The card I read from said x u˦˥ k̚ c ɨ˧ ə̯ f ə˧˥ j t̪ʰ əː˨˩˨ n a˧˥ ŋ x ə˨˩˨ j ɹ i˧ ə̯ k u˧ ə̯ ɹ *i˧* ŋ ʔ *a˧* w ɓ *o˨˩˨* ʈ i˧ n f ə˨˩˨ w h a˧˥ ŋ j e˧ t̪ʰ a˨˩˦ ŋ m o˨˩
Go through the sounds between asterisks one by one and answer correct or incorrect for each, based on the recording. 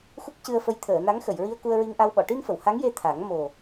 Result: correct, correct, incorrect

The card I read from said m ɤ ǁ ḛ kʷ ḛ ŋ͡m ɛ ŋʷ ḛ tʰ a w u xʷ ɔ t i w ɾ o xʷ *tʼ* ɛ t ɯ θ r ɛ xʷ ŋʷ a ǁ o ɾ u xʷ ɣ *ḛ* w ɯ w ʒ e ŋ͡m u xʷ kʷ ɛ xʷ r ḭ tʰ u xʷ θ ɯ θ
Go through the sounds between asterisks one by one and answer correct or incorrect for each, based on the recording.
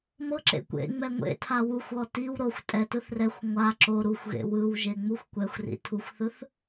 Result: correct, correct

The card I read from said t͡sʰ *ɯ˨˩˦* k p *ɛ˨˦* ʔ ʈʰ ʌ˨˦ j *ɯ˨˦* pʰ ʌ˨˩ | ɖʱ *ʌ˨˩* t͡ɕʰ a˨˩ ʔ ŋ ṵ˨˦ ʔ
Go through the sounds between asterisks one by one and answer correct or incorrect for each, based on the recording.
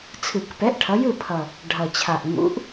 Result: correct, correct, incorrect, correct

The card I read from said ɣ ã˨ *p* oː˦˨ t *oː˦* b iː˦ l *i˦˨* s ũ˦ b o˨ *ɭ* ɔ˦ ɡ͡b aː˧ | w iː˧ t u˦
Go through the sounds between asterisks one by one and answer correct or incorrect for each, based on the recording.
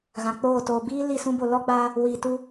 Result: incorrect, incorrect, correct, incorrect

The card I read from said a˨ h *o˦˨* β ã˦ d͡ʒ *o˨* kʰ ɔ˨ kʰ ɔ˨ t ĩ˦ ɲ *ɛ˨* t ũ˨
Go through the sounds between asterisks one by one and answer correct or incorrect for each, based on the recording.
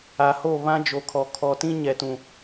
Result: correct, correct, correct

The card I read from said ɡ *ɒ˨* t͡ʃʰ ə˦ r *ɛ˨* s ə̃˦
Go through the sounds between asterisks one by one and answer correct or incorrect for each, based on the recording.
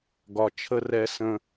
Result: correct, incorrect

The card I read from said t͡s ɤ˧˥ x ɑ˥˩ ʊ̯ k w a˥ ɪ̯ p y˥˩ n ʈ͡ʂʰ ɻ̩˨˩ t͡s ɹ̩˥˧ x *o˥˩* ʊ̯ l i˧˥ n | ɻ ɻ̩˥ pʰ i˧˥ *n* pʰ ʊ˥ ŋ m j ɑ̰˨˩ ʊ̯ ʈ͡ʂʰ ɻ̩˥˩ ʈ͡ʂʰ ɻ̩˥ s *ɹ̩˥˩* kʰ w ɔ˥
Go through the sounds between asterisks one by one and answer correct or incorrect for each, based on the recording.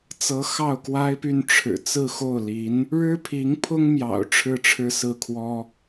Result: correct, incorrect, correct

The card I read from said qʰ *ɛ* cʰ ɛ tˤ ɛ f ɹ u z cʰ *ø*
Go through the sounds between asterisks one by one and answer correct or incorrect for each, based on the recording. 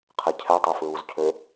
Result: correct, correct

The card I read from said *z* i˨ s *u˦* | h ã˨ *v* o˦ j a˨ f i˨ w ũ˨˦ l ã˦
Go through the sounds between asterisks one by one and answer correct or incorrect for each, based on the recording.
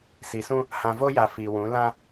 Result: incorrect, incorrect, correct

